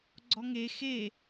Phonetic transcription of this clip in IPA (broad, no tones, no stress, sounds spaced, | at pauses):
ɡ͡ǀ ɔ ŋ e x e